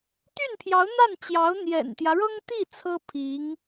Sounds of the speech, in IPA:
t̪y˥˩npʰjɑ˧˥ʊ̯n̪a˥˩nt͡ɕjɑ˧˥ʊ̯ n̪jɛ̰˨˩nt̪jä˦ɻɤ˥ŋt̪i˥˩ t͡sʰɤ˥ pʰi˧˥ŋ

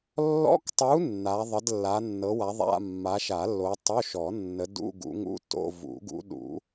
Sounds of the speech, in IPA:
lːɔ̰˧˥˧ktˤu˨˦ nːa˨˦ ðˤə˨˦dlːa˨˦ nːɤ˨˦wa˨˦ðˤa̰˧˥˧ mːa˨˦ʃa˨˩˦lːo˨˦ tˤo˧˥˧ʃɔ˨˩˦ nːə˨˦ dṵ˧˥˧ ɡṵ˨˦ŋṵ˧˥˧to̰˧˥˧ vṵ˨˩˦ɡṵ˨˦ɗṵ˨˩˦

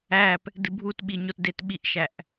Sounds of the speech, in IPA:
æp | dɨbʱutɓi ɲotdetɓiʔʃæʔ

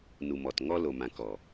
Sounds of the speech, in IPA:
nu˨ mɔ˨t ŋɔ˦lo˨mã˨ kɔ˨

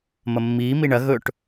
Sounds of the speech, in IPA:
mɐmːiː miɳɐ ɣɵʈ

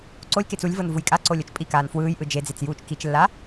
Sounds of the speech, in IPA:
ǀolʲket͡s ulʲvɤn vujkʼaǀo lʲɤt͡ʃpʼikaːn fwɯːjʔɯ d͡ʒed͡zet͡s juːt͡ʃkit͡ʃlːa

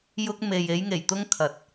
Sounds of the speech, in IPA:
jʊ˧k̚ me˨j e˨˧jŋe˨˩jt̪ʊ˧ŋ kʰɐ˨t̚

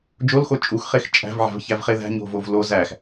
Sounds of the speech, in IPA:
d͡ʒolxo t͡ʃʼuxχex t͡ʃʼæ̤vʕæ̤vçævχe ðæ̤ɲo̤vov lo zæx

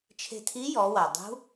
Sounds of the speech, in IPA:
t͡ʃʰe̤˧tʰi˧˥jɔ˩˧wa˩ dˤṳ˧˥

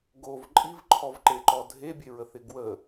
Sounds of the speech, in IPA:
ɡov ǃʼivǃʰɔvǃeǃɔ dʱebʲeɹəθɪ ɡwə

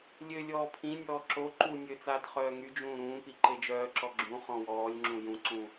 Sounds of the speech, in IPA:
lʲø lʲɔːpʰĩnʲɔː ǁo ǃu nʲøt͡saːt χœːŋyd͡ʒũː ɾũːpi ǃed͡ʒœːǁɔ ɡ͡ǁũ χɔ̃wɔːlʲŋ͡ǁũ jũǀũ

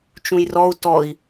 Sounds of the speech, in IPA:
t͡ʃũjrɔu̯ tɔi̯

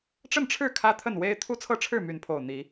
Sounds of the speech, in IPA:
ʈ͡ʂə˥˨nʈ͡ʂʰɻ̩˥˨ kʰä˦ t̪ʰə˥˨nwe˦ɪ̯ t̪ʰu˦t͡sʰɤ˦ʈ͡ʂʰɻ̩˥˨ my˨˦npʰo˨˩ʊ̯ n̪i˨˦

